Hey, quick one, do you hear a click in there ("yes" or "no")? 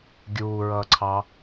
yes